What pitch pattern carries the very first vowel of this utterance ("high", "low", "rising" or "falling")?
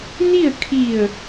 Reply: falling